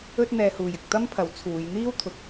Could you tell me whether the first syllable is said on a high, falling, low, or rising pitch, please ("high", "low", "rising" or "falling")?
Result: high